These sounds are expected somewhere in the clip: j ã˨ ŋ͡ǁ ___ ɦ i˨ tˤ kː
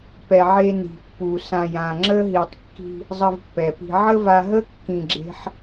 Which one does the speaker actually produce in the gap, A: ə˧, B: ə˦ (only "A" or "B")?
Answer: B